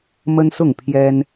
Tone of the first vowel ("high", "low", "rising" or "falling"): high